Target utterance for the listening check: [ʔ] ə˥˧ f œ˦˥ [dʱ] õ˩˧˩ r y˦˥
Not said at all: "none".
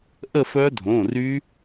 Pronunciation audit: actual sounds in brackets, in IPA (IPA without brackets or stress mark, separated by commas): ʔ, dʱ